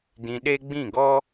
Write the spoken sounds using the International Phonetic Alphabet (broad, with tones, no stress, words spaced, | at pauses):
dĩ˧ɗe˦ ɡ͡bĩ˦˨ɡɔ˦